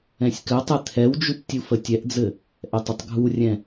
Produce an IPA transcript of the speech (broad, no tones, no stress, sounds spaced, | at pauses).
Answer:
ɛ̃ sʲ k ɘ tˤ ɛ t̪ʰ ɛ w d͡ʒ u p tʲ u f ə tʲ ɛ ʔ d͡z ɘ | ʔ ɛ tˤ ɪ tˤ ɡʱ u rʲ ɛ̃